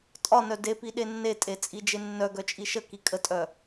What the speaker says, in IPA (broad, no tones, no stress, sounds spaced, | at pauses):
tʼ ɒ n œ d e p i ɗ e nː e tʼ e t͡sʼ i d͡ʒ e nː œ ɡ œ t͡ʃʼ i ʃ ə k i kʼ ə tʼ œ